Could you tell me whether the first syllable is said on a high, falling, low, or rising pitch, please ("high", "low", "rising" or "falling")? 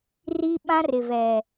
high